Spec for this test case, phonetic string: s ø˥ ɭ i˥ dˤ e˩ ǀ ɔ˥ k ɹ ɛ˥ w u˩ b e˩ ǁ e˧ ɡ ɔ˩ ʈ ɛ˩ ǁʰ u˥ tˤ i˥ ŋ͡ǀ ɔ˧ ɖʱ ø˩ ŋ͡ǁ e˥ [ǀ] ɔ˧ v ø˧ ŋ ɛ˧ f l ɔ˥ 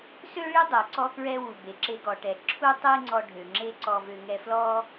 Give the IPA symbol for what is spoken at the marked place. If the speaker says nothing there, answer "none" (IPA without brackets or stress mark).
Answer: ǀ